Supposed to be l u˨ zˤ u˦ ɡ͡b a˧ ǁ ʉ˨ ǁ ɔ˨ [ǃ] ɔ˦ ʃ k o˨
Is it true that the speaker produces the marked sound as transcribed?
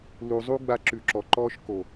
yes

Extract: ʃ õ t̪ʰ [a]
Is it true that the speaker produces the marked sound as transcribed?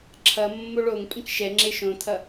no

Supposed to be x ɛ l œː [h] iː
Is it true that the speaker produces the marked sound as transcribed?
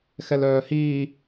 yes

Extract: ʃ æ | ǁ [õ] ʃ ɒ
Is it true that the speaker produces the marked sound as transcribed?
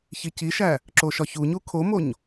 no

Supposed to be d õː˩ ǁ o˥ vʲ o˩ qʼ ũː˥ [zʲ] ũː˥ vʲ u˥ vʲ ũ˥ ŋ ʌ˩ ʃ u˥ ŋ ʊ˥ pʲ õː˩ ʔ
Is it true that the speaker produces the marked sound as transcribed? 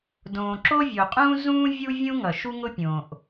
no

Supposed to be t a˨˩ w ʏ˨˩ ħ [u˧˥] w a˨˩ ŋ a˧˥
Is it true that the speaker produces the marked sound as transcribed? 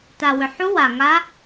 yes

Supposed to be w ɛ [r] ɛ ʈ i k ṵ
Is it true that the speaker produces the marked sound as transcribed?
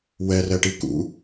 yes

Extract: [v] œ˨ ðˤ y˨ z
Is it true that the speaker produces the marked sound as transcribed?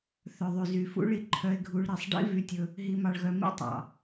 no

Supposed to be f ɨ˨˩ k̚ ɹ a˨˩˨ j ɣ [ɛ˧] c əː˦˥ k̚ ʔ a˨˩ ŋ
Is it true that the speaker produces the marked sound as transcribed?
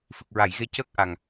no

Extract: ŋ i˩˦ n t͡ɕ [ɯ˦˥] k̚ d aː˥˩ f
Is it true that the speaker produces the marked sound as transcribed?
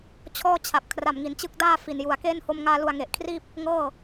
yes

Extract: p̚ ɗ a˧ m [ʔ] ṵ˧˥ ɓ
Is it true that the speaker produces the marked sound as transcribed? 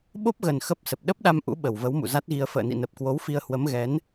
yes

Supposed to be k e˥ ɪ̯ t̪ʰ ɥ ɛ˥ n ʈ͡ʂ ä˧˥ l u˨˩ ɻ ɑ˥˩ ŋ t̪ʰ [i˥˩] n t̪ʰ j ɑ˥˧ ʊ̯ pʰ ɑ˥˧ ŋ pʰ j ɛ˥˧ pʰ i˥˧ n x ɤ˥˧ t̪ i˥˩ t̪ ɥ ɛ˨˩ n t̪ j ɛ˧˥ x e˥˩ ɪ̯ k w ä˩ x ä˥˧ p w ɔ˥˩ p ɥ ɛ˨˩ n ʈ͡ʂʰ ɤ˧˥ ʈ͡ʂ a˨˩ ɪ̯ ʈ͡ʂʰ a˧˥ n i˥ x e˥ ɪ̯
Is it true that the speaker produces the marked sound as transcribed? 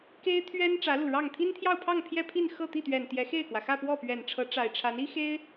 no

